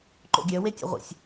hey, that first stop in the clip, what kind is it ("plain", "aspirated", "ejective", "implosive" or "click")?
click